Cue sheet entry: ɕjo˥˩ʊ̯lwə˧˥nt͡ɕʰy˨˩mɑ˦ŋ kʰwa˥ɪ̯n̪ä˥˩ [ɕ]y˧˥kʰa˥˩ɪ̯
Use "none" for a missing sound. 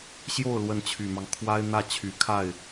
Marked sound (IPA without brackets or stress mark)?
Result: t͡ɕʰ